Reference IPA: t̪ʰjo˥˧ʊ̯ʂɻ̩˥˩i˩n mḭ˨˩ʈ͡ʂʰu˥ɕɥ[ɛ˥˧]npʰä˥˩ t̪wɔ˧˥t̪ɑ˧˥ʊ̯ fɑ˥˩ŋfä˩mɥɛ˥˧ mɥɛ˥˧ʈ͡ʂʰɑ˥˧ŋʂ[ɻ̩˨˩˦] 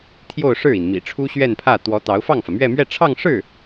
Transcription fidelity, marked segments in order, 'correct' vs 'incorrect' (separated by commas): correct, incorrect